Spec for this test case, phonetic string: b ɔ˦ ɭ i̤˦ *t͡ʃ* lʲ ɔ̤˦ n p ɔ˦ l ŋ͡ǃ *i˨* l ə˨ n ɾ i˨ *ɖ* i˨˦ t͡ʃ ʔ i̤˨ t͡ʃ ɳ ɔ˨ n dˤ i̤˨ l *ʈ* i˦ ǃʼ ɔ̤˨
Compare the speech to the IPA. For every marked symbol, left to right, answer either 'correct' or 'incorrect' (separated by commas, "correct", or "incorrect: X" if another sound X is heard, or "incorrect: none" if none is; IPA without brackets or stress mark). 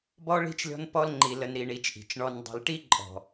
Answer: correct, correct, incorrect: ɳ, correct